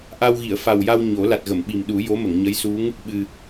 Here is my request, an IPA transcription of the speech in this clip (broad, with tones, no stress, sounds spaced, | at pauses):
ʔ a˧ w ɣ i˨˩˨ ə̯ f a˨˩ w j a˧ w ɲ o˨˩˦ l a˨˩ t̚ ɣ ə˨˩˨ m ɓ i˨˩ m ɗ u˨˩˦ j o˧˥ m ə˨˩˨ ŋ ɲ ə˧˥ j s u˧˥ ŋ | ɓ ɨ˨˩